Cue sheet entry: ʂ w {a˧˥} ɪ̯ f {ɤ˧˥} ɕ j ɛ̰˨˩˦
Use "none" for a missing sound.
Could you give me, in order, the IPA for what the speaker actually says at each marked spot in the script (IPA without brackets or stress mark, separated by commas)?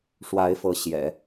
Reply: a˧˥, ɤ˧˥